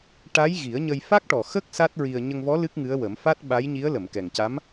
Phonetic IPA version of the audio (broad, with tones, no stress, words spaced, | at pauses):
ʈa˧˥jɣi˨˩˦ə̯ɲə˧j fa˦˥k̚ʈɔ˨˩ xə˦˥k̚ sa˦˥t̚ɹi˧ə̯ ɲə˧ŋvɔ˧˥ lɨ˦˥k̚ŋɨ˧˥ə̯wə˨˩˦m fa˦˥t̚ɓa˧˥jɲi˧˥ə̯lə˨˩˨m kɛ˨˩ŋca˧˥m